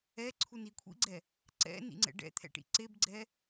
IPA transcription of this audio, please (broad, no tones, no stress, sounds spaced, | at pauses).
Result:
ɛ ǀʰ u n i kʷʰ ḭ ɡ͡ǀ ɛ | ǀ ɛ̰ n ḭ ŋ͡ǀ ɛ̰ ɖ ɛ̰ t̪ʰ ɛ̰ ʈ ḭ ǀ e b ɡ͡ǀ ɛ